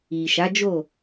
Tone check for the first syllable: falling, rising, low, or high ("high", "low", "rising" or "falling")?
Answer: low